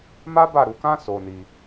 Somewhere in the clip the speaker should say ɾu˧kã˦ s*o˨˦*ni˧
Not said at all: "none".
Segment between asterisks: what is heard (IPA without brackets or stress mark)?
o˧